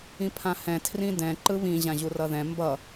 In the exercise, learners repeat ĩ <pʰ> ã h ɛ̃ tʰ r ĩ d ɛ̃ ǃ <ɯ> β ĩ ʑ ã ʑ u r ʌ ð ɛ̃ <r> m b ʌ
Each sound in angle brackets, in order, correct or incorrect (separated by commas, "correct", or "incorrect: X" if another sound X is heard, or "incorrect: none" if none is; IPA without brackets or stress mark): correct, correct, incorrect: none